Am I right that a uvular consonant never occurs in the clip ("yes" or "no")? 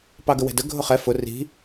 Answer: no